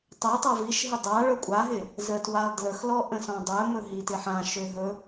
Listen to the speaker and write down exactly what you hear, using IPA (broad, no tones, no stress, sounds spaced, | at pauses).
tˤ ɛ tˤ a v i ʃ ɦ ɪ dˤ a ɭ ɵ kʷʼ a ɦ ɪ | z ə t w a lˠ d l ə x l ɔ ʔ ə̃ s ɔ̃ dˤ ɵ m ɵ ɦ i t ɪ ħ ã ʃ ø ɦ ɵ